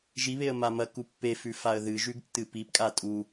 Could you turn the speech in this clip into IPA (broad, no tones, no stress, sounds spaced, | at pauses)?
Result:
ʒ i β e ə̯ m a m ɐ k u pː e f ʉ f a ə̯ ð ɨ ʒ ʉ ɡ tː ɨ p i p kʼ a tʼ u